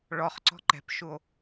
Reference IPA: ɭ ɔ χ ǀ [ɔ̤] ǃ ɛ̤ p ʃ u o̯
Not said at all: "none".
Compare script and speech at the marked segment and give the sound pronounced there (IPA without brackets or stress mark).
ɔ̤